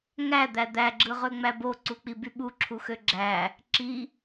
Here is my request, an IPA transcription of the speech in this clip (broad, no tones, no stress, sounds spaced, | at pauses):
ŋ æ d̪ æ d̪ æ ɡ͡ǁ ɯ ʁ ø ŋ͡m æ b o ǀ u k͡p i b y ɓ u ǁʰ u x ø ɡ͡ǁ æ | ǁ i